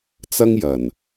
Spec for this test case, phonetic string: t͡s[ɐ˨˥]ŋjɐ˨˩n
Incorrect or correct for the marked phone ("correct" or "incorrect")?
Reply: incorrect